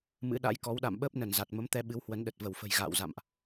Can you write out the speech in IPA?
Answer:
m ɨ̰˧˥ ɗ a̰˧˥ j k ɔ˨˦ w ɗ a̰˧˨ m ɓ əː˦˥ p̚ n ə˧˩ n z a˨˩ t̚ m ə˨˦ m t̪ ɛ˧ ɓ ɨ˨˦ w h w ə˨˦ n ɗ ə˨˩ t̚ v ə˧˩ w f ə̤˨˩ j ɣ a̰ː˧˨ w z a̰˧˨ m ʔ

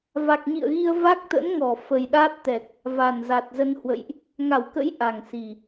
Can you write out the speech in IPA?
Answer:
v a˨˩ k̚ ɲ ḭ˧˨ ə̯ ɣ i˧ ə̯ v a˦˥ k̚ t̪ ə̰˧˥ n ŋ ɔ˧˩ f ə˨˩ j ɗ aː˦˥ t̚ t̪ ɛ˨˩ k̚ | v a˨˩ n z a˨˩ t̚ z ə˧ n h w ə̰˧˨ j ʔ | ŋ a˧˩ w k ə̰˧˥ j ʔ a˨˩ ŋ s i˨˩

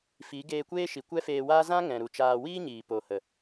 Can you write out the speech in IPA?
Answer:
f i˨˦ ɡ eː˧ kʷ eː˦ ʃ i˨ kʷ ɛ˦ f eː˧ w aː˦ z ã˦ ŋ ɛ̃˨ ɾ u˨ t͡ʃ aː˧ w iː˦ ɲ iː˨ p o˨ h ə˨

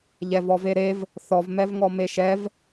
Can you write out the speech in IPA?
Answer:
ʎ ɛ v ɔ v e ɾ e v | θ ɔ v m ɛ v ŋ ɔ m e ʃ ɛ v

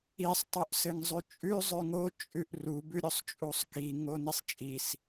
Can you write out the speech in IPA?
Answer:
i sˤ tˤ u ʔ s ɘ ŋ zˤ ʉ t͡ʃʼ ʉ zˤ ʉ ŋ o t͡ʃʼ ʉ ʔ r u b ʉ ɾʲ o sˤ t͡ʃʼ u sˤ k i ŋ o n i sˤ t͡ʃʼ i s

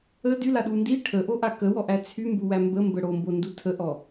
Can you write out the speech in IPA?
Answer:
ə d y l a ɗ u n d i ʈʰ ə ʔ o ʔ a k ə w ɔ ʔ æ t͡sʰ y m b u w æ m b ə m b ə ɽ o m b o n d u tʰ ə ʔ ɔ

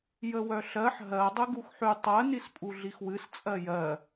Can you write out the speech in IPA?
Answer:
j ə w œ ɬ ɜ ħ ɦ ɜ dˤ ɨ ɡ u x ħ y tˤ ɜ n i s pʼ u ɮ i x w ɨ s t͡sʼ ɜ j ɜ

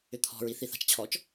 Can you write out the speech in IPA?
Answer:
ʏ t̪ʰ ɔ̤ ɹ i θ i θ a̤ t͡ʃ t͡ɕʰ ɔ t͡ʃ

